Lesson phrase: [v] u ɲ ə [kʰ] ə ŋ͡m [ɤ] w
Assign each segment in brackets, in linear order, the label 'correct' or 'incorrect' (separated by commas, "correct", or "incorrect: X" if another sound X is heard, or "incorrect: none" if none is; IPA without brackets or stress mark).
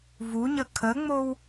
correct, correct, incorrect: o